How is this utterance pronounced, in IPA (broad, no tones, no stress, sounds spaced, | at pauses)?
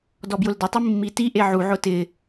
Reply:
d ɔ b j ʊ l d ɪ tˤ i mː i t i ʔ e ʕ u ʕ ʊ t ɪ